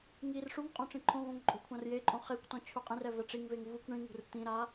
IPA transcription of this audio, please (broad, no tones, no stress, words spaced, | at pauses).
ŋir ʂuŋqʼõ ʈ͡ʂĩǃʰõvõŋ ǃʼo̤kʷʰãrjeǃʼõ χekʷtɔ̃ t͡ɕʰuqʼĩrɛ vɛʈ͡ʂiŋveŋ vukʷ ɳĩŋṳr t̪ĩɾa